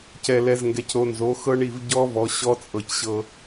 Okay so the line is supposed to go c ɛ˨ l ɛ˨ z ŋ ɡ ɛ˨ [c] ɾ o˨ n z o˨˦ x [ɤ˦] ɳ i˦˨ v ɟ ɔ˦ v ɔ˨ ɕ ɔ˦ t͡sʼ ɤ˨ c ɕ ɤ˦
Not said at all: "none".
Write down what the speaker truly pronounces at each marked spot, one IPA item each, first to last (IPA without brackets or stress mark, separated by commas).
c, ɤ˦